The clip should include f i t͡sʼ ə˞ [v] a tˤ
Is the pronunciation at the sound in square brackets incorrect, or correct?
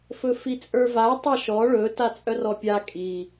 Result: correct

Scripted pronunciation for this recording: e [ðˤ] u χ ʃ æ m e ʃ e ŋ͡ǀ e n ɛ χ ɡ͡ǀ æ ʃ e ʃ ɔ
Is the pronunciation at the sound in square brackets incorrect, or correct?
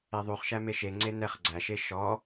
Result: correct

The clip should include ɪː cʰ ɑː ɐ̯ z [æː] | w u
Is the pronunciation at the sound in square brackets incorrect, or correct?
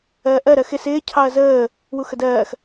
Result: incorrect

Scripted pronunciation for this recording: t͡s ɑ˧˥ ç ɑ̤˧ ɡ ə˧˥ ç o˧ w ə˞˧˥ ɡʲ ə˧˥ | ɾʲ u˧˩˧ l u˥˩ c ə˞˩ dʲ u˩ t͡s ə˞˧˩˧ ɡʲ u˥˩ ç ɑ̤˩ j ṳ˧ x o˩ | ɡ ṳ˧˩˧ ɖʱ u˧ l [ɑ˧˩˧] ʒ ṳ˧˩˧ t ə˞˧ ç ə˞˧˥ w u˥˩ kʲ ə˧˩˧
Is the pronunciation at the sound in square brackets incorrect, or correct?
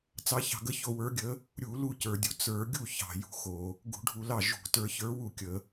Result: incorrect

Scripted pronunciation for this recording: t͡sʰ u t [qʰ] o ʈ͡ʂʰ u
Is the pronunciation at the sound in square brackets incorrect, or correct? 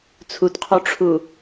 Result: correct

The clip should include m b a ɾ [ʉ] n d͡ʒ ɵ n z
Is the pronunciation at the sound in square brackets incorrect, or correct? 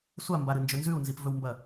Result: incorrect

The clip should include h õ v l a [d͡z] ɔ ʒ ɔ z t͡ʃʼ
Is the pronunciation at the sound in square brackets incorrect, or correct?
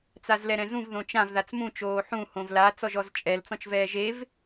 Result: incorrect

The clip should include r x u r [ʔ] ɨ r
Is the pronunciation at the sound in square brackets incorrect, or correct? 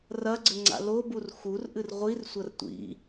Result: correct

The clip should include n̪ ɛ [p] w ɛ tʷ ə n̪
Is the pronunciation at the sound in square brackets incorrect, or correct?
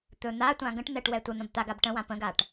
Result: incorrect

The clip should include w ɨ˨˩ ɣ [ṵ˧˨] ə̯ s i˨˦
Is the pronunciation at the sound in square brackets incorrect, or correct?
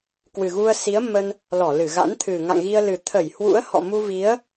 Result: incorrect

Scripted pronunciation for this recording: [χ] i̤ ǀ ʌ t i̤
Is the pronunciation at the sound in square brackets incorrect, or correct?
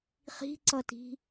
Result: correct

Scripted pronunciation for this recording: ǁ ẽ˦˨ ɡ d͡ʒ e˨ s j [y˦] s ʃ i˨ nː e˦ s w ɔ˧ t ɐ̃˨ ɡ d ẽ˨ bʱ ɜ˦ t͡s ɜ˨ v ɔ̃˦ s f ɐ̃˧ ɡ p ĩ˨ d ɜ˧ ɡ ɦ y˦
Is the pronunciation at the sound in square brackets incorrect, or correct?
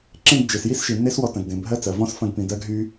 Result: incorrect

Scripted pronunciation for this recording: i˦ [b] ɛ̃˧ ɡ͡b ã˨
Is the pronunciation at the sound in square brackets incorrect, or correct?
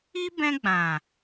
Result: correct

